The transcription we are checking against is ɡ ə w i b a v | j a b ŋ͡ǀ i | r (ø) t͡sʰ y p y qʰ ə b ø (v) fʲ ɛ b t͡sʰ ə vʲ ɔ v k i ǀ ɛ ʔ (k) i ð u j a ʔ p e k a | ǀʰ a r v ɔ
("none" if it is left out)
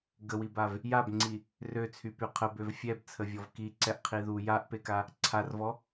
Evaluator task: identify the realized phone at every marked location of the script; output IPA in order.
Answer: ø, v, qʰ

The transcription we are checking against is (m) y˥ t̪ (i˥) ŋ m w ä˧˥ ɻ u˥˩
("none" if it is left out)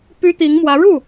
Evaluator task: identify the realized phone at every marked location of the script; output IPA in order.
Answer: p, i˧˥

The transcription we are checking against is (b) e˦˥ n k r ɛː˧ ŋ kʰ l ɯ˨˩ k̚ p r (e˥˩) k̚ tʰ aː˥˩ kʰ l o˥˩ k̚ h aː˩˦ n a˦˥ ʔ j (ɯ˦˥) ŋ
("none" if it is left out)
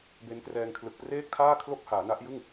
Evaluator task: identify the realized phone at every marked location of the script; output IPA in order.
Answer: b, eː˥˩, ɯ˥˩

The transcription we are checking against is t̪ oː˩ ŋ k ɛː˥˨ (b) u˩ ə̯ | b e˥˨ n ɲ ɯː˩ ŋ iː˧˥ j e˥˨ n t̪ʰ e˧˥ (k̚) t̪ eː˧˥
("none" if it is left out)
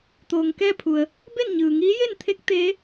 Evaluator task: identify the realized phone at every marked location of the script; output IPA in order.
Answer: pʰ, k̚

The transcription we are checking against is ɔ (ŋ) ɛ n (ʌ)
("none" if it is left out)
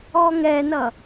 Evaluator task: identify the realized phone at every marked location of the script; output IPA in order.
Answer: ŋ, ʌ

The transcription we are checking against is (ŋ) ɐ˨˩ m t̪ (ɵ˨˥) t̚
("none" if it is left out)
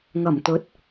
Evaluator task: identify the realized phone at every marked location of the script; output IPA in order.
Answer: ŋ, ɵ˨˥

